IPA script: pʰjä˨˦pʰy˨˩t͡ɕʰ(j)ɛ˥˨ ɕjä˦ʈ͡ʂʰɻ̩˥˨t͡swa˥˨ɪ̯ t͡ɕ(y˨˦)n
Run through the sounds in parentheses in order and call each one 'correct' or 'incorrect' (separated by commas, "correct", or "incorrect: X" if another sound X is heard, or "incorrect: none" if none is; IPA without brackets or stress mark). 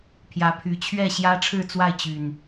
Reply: incorrect: ɥ, incorrect: y˨˩